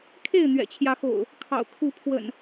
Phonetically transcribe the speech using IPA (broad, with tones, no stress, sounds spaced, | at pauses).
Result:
kʰ e˥˨ ɪ̯ n̪ ɥ ɛ̰˨˩ t͡ɕʰ j ä˨˦ x o̰˨˩ ʊ̯ | kʰ ɑ̰˨˩ ʊ̯ kʰ u˨˦ pʰ w ə̰˨˩ n